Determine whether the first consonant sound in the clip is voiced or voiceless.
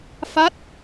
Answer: voiceless